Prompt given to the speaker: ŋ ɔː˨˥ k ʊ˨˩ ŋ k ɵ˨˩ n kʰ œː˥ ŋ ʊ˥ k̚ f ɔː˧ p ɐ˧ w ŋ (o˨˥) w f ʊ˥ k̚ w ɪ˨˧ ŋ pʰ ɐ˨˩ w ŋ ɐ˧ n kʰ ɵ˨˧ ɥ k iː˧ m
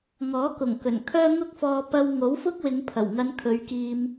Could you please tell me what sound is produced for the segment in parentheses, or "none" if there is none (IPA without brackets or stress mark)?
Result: o˨˥